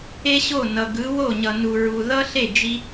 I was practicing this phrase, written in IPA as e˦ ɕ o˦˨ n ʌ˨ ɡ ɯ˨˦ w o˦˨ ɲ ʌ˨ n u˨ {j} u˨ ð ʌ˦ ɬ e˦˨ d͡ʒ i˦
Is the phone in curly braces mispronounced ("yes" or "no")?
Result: yes